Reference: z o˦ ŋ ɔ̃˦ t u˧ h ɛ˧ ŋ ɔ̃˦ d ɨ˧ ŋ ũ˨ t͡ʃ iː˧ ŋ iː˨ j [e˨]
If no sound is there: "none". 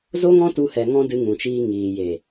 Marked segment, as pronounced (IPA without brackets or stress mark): e˨